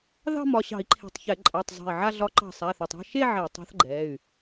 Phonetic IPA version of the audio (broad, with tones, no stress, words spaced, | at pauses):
ðɑ̤˥˧mɒ˩˧˩ɕɑ̤˧˩˧i̯ ǃʰe̤˧˩tˤçɛ˧˩˧ ǃʼɑ˩˧˩tˤ zˤa̤˧˩i̯ʕa˥˧ɮɒ˧˥ ǃɑ̤˧˩ sˤaː˩˧˩θɒ˧˩tˤɑ̤˥˧ ʃe˥˧ ʕe˧˩˧tˤa̤˧˥θɡ͡ǃɛː˩˧˩y̯